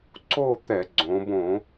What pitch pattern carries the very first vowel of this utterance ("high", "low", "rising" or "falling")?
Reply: falling